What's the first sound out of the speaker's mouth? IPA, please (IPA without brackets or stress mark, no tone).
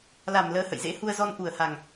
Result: l